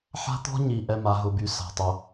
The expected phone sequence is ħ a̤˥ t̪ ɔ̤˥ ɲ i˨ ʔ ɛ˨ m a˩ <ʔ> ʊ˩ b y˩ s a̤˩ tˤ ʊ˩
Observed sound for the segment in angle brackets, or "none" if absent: ɦ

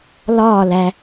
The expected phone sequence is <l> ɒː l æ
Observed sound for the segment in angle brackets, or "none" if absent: l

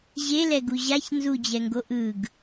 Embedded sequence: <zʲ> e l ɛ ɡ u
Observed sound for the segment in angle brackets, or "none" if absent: ʑ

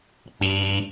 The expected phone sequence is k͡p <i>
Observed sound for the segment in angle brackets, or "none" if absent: i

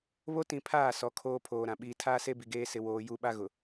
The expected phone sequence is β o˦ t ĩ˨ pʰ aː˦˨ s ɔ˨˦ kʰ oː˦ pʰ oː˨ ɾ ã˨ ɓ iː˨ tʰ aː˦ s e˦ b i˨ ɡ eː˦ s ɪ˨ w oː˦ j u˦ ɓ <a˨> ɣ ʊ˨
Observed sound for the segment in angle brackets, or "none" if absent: a˦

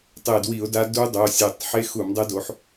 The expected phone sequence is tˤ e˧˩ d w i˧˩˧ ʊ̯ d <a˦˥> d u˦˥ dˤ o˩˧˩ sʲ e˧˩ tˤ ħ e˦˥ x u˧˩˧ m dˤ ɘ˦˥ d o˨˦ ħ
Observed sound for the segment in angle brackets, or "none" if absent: a˦˥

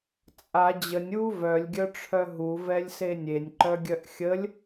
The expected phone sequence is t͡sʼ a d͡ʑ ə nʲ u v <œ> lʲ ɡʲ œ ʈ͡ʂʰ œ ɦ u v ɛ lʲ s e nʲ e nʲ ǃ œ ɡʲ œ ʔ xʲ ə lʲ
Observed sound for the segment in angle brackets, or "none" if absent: œ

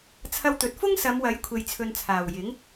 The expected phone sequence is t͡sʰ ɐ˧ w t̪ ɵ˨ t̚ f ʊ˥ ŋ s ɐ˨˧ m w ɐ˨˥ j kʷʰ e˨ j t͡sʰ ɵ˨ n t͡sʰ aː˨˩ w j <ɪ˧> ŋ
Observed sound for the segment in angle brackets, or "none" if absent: ɪ˨˥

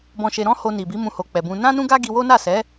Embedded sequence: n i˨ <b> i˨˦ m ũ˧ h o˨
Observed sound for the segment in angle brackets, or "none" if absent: b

